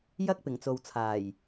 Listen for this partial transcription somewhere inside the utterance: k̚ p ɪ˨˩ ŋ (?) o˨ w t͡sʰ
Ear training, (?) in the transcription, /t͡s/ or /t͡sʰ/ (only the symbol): t͡s